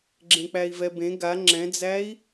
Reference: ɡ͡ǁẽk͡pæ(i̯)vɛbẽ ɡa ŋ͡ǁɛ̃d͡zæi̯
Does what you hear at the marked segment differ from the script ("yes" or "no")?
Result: no